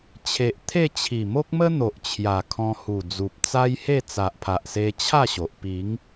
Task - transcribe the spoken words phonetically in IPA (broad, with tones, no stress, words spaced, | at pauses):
t͡ɕʰe˨ʔt̪ʰe˥˧ t͡ɕʰi˨˩mo˦k̚mə˦n̪o˨ʔ t͡ɕʰja˨˩kʰɔ̃˧hu˨˩d͡zu˨p̚ t͡sa˦jhe˥˧ t͡sa˨ʔpʰa˨ʔse˧ t͡ɕʰa˥˧ɕo˨ʔ pi˨˦ŋ